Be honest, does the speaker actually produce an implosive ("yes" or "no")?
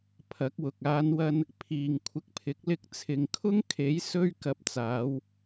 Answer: no